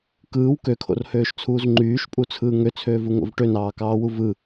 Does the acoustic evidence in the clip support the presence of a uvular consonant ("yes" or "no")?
no